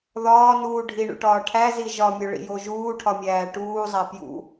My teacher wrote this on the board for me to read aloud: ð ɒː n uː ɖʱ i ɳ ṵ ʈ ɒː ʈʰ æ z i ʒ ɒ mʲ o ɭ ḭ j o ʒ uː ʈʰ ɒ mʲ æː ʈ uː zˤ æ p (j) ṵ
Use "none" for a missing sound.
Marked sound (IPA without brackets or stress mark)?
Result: j